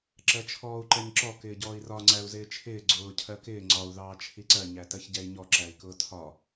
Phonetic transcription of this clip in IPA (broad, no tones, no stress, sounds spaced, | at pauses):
ǁ ɜ t͡ʃʰ ɔː u̯ ǃ ɛ ɲ ǁ ɔ k ɪː ɟ ɔː i̯ r ɒ ŋ͡ǀ æ u̯ z ɪː t͡ʃʰ ɪː ɡ͡ǀ ʊː cʰ ɜ k ɪː ŋ͡ǀ ɒ u̯ ð ɑː t͡ʃʰ i ǀ ɜ ɲ æ t ɜ ç ɟ ɛ i̯ ɲ ɔ ǁ æ i̯ k ʊː tʰ ɒ